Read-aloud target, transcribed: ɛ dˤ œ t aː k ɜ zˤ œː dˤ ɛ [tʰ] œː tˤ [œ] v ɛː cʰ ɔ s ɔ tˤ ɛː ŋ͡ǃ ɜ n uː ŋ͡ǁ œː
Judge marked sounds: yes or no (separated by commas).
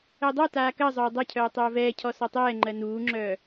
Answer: no, no